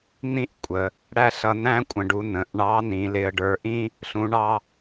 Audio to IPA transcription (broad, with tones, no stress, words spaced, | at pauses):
n̪ĩ˥ʔ kʷʼə˩˧ | ɽæ˥ɬʌ˧ næ̃˥kʷʼə̃˩˧ɖu˩˧ nə̃˩˧ʔɳɑ˧˥ nĩ˩˧lɪ˧ə̯ ɖə˞˧ʔĩ˥ | ɬũ˧˥ɳɑ˥